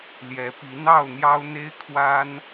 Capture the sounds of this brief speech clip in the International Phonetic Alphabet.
l j ɛ˨˦ p i˨˦ n̪ ɑ˥˨ ʊ̯ n̪ j ɑ˦ ʊ̯ n̪ e˦ ɪ̯ kʰ w a˦ n

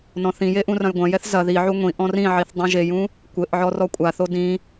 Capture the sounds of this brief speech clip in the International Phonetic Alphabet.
n ɔ̃ θ ĩ j e ʔ ũ r ɐ̃ j ɡʷ ɐ̃ j ɛ θ z ɐ ð i ʕ u ŋʷ ĩ ʔ ɔ̃ r ĩ ʕ i θ dˤ ũ ʒ e j ũ | kʷ ɘ ʔ ʕ ɔ r ɔ kʷʼ a θ o d ĩ

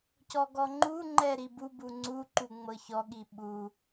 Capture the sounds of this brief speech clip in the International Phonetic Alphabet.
c ɔ ɡ ɔ ŋ͡ǃ u ŋ͡ǃ ɛ ɾ i b u b u ŋ͡ǀ u ǃ u ŋ͡m ɤ ç ɔ ɠ i ɓ u

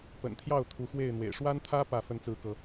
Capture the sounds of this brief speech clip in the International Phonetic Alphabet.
p ə̰˨˩ n t̪ʰ j ɑ˥˨ ʊ̯ t̪ʰ u˨˦ x w e˥˨ ɪ̯ n̪ w ḛ˨˩ ɪ̯ ʂ w a˦ n t̪ʰ ä˦ p ä˥˨ f ə˨˦ n t͡s ɹ̩˨˦ k ɤ˨˦

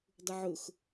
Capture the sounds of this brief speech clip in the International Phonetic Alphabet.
dˤ ʊ ʕ ʊ x

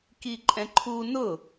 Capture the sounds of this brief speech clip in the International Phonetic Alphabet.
k i ǃʼ ɛ̃ ǃʰ u n ʊ

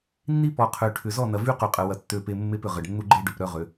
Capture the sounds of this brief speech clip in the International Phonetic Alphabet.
nː i˦ p ɔ˨ qʰ ø˨ ʈʰ ʏ˨ z ɔ˦˨ n ɐ˨ v y˦ q y˨ qʼ ə˨ w ɐ˨ tː ø˦˨ p e˦ mː e˦ p ʏ˨ ʁ ə˨ ɖ nː u˦ ɡ͡ǃ e˦ ɖ ʏ˨ p ɾ œ˦ ʁ ø˨˦

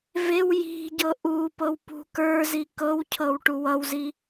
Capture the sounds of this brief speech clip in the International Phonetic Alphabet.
v e w j i̤ ɟ ɤ ʔ u p ɤ w p ṳ k ə˞ z i k ɤ w cʰ ɤ w ʈ u w ʌ w z i

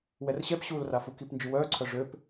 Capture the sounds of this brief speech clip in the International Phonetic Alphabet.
w ɛ r ɕ ɛ p ɕ uː l r a f u k i p n d͡ʒ y w œː ǀʰ œ ʐ ø p

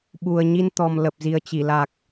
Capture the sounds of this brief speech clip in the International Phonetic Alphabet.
ɓ u˨˩ ə̯ ɲ i˧ n t̪ ɔ˨˩ m l ə˨˩ p̚ z i˨˩ ə̯ t͡ɕ i˧˩ l a˨˩ k̚

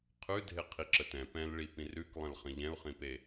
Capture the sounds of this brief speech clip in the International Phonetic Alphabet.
qʰ ʉ dʱ e qʰ i ǁ ə t ɛ̃ p ɛ̃ l ɭ i p ĩ r ʉ k lˠ ə̃ l χ ə̃ ʎ ɛ̃ u̯ χ ĩ p e

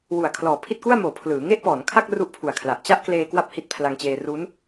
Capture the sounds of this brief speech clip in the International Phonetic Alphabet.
w u˨˩ a̯ kʰ l ɔː˨˩ pʰ i˥˩ t̚ k u˥˩ a̯ m oː˩˦ pʰ l ɯː˩˦ ŋ e˥˩ ʔ p ɔː˩˦ n kʰ a˥˩ k̚ r u˥˩ ʔ pʰ u˨˩ a̯ kʰ l a˨˩ ʔ t͡ɕ a˥˩ ʔ k l eː˧ k w a˥˩ p̚ h i˦˥ t̚ pʰ l a˧ ŋ t͡ɕ eː˧ r u˦˥ n

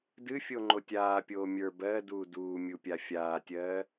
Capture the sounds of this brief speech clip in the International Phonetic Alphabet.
d ɨ fʲ o ŋ͡ǃ o tʲ aː pʲ oː mʲ ə˞ b ɜ d uː d uː mʲ u pʲ a fʲ aː tʲ ɜː

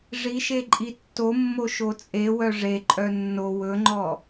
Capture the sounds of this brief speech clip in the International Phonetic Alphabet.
ʐ i ʃ e ǃʼ i tː o mː o ʃ o t͡sʼ e w œ ʐ e ǃʼ œ nː o w ɵ ŋ͡ǃ ɔ

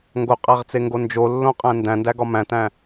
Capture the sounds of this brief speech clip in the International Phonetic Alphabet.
ŋ ɡ o qʼ æ ʁ t͡s e ŋ ɡ o n d͡ʒ o lː õ qʼ æ̃ n d æ̃ n d æ ɡ ɒ m æ̃ t æ̃

